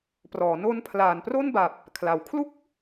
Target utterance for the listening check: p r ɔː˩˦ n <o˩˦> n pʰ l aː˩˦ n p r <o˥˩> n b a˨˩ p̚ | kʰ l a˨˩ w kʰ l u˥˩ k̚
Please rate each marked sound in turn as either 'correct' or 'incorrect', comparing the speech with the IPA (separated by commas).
incorrect, correct